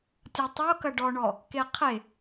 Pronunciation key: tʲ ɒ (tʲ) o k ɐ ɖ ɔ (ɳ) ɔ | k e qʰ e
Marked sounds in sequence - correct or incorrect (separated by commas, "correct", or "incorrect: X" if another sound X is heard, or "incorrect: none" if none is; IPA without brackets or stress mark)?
incorrect: tˤ, correct